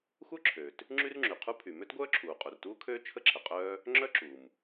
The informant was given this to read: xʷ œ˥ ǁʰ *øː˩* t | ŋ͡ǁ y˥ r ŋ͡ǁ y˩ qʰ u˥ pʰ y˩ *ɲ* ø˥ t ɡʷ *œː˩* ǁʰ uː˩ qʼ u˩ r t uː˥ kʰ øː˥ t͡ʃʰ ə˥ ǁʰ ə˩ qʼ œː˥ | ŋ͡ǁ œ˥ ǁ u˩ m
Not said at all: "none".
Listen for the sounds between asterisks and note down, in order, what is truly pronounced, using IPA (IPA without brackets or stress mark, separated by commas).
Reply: øː˩, m, œː˥